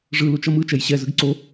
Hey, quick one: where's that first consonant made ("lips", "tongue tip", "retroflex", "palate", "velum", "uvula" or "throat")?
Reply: retroflex